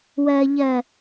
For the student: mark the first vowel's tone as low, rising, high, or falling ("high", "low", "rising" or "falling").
low